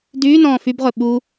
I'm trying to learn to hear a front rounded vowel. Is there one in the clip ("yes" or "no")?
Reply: yes